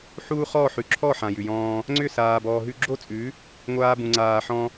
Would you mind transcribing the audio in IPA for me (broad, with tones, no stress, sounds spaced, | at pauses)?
ħ u˦ χ ɔ˦˨ ħ ʉ˨ ǁʰ ɔ˦˨ ħ ã˨ j ʉ˨ j ɔ̃ː˧ | ŋ͡ǀ ʏ˦˨ s aː˨ b ɔː˨ ɦ ʉ˧ ɡ͡ǁ o˦ t͡sʼ ʉ˨˦ | ŋʷ aː˧ b ũ˨ ŋ͡ǀ aː˨ ħ ɔ̃˧